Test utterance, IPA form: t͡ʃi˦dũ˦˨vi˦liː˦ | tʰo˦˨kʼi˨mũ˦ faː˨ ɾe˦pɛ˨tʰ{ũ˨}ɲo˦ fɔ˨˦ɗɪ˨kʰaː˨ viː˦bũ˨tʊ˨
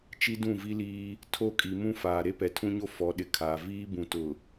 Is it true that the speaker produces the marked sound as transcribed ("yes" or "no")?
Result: no